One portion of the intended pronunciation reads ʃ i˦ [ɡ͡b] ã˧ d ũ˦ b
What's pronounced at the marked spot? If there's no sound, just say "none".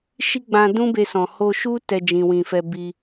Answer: ɡ͡b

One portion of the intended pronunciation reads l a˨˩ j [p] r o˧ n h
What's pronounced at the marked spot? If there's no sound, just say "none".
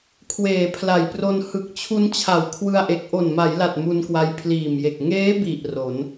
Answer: p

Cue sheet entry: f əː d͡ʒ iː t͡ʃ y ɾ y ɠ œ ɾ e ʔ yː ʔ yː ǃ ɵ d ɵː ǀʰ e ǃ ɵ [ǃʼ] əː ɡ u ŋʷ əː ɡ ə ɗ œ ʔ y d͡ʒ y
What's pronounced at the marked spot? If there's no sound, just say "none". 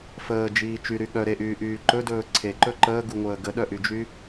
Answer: ǃ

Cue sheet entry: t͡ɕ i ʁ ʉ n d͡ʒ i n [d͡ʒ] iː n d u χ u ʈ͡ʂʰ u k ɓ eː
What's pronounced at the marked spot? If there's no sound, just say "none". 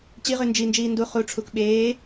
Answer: d͡ʒ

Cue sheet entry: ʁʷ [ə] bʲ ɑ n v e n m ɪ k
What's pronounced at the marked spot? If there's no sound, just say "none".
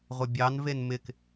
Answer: ə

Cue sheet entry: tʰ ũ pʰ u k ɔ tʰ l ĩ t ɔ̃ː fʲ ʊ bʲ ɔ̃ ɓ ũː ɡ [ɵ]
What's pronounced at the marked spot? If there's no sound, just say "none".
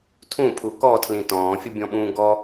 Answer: ɔ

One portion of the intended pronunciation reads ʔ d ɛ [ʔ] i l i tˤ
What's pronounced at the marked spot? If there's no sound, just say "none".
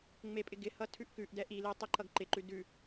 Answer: ʔ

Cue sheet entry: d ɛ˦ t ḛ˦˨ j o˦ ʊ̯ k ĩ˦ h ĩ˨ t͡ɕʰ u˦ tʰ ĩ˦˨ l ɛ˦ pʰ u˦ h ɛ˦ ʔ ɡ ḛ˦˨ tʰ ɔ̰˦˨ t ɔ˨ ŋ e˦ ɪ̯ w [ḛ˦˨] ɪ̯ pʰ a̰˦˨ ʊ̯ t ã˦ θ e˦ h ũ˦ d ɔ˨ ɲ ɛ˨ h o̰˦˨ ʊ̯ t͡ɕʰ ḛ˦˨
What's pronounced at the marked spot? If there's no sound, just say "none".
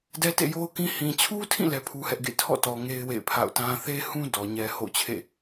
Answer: ḛ˦˨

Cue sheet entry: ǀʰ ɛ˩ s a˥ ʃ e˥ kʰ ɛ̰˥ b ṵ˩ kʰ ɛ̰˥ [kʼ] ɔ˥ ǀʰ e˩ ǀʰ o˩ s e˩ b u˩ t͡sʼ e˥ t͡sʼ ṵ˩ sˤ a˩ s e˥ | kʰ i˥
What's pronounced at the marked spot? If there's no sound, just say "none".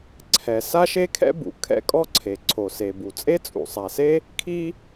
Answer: kʼ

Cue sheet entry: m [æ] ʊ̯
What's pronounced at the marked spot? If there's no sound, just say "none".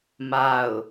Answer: a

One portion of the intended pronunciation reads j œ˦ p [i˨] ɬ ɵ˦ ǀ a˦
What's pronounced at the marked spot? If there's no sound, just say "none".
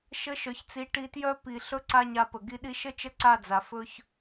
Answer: i˨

